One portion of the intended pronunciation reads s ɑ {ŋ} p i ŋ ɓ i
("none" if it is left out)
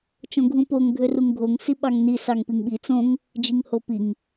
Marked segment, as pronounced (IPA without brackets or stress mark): ŋ